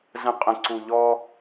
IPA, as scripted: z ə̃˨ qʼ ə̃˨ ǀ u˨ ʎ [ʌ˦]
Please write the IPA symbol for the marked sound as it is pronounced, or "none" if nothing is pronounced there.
ɔ˦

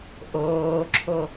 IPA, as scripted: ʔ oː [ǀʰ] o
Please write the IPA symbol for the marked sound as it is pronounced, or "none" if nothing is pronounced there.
ǁʰ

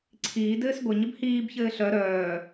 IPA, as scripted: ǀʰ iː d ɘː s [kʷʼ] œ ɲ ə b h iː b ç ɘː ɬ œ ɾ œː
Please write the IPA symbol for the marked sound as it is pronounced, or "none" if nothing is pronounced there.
ɡʷ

